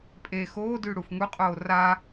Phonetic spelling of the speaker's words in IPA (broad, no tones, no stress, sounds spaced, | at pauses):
pʼ e x oː d y ɽ u f ŋ u qʼ oː r a